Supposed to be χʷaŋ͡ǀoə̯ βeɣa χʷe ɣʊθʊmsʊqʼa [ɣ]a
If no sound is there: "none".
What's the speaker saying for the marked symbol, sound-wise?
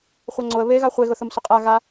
ɣ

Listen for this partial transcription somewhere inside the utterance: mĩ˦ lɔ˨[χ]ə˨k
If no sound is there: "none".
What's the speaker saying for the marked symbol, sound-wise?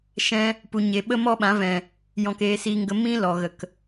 ɣ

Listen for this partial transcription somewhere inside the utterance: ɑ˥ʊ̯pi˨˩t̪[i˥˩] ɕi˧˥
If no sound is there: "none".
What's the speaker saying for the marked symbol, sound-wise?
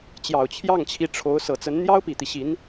i˦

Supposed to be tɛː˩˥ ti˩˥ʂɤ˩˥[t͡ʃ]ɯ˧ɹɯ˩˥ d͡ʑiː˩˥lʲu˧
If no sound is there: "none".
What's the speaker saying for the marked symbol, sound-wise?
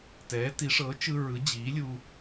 t͡ʃ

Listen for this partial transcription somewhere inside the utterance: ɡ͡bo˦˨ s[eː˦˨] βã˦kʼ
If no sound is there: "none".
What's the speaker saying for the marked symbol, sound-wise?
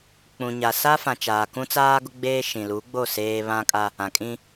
eː˦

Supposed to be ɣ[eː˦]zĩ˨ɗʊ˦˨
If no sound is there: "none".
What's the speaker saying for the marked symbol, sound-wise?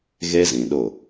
e˦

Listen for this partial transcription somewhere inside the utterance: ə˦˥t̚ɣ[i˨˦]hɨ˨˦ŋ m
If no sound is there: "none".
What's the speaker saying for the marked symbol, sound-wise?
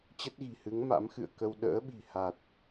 i̤˨˩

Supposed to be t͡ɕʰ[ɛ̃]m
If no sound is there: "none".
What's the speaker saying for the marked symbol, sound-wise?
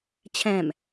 ɛ̃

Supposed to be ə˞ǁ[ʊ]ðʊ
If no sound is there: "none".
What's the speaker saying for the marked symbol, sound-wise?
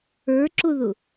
ʊ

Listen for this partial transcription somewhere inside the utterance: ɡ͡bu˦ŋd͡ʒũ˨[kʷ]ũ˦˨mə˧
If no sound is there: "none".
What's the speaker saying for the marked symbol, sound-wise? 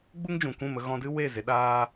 kʷ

